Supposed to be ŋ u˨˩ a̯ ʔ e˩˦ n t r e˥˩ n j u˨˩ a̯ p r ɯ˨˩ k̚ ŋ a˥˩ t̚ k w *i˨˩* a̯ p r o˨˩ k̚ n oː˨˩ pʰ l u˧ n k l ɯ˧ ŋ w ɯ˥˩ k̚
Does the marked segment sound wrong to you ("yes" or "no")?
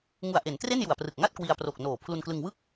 yes